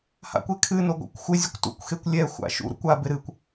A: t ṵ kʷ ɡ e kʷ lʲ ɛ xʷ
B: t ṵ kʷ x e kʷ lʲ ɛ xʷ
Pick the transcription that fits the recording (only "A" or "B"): B